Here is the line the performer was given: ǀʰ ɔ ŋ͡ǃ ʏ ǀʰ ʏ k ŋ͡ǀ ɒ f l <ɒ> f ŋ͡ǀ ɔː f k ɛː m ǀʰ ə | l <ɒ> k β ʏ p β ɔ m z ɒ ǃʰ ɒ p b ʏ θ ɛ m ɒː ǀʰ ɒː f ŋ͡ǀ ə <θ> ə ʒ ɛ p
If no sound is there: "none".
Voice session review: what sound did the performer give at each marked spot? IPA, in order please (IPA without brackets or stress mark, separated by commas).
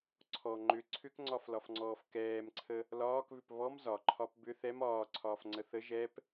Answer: ɒ, ɒː, θ